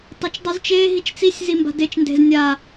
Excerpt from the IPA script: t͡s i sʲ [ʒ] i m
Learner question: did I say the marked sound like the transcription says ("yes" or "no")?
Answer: no